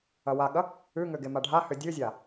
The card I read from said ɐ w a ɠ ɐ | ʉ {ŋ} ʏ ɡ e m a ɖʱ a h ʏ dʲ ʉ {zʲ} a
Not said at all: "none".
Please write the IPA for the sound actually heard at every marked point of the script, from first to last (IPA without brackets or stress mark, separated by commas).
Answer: ŋ, zʲ